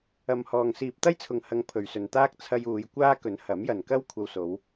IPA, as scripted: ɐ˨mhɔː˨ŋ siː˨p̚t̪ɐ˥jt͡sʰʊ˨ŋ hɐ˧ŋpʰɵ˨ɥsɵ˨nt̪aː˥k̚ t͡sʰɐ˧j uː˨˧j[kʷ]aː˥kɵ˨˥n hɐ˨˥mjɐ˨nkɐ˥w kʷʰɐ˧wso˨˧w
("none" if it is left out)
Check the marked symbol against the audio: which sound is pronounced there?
kʷ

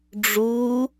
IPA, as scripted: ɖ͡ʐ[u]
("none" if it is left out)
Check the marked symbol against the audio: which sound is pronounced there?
u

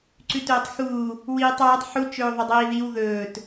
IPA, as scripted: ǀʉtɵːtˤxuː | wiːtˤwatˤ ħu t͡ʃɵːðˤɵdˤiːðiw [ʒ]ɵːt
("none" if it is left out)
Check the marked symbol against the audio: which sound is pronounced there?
ð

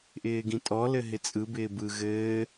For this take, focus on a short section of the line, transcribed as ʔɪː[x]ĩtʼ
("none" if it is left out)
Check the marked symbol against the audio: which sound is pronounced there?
ɡ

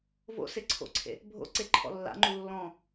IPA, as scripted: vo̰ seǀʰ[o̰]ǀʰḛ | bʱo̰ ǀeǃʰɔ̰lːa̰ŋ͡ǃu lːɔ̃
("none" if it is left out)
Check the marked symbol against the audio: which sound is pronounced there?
o̰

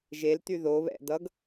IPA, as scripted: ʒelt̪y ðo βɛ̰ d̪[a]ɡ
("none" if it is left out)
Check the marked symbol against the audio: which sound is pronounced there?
ʌ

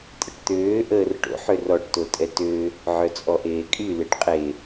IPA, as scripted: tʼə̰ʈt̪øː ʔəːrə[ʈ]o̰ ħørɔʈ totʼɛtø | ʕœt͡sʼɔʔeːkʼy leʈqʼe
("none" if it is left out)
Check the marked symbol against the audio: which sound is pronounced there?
ʈ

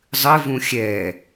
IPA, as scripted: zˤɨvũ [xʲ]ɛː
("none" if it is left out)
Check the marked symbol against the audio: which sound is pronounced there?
xʲ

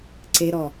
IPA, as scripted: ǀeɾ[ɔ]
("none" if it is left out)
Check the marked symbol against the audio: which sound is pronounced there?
ɔ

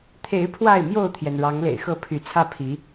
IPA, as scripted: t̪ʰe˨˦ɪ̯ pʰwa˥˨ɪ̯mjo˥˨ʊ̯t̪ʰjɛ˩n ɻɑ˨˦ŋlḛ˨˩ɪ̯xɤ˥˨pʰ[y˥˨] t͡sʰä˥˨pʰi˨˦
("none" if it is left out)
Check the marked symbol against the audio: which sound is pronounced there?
y˨˦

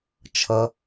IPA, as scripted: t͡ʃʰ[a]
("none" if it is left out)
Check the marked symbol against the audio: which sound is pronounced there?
ʌ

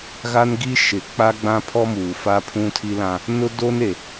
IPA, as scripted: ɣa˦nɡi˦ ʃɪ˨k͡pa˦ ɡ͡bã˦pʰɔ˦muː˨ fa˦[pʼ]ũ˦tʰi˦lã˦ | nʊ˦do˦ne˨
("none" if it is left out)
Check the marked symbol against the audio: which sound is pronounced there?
pʰ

